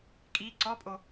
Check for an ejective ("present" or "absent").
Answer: present